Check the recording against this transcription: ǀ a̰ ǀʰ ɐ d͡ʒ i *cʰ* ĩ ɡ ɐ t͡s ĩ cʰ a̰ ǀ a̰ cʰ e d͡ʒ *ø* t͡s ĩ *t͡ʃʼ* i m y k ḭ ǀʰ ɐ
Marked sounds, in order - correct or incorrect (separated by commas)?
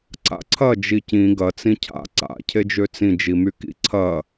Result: incorrect, correct, incorrect